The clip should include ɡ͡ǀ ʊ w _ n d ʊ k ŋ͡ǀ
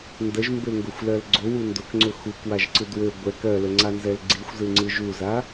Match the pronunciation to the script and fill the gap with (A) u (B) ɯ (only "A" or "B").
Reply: A